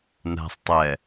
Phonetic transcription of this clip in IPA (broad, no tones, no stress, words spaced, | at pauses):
næ̤sˤ tˤɛ